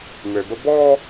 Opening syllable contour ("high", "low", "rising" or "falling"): low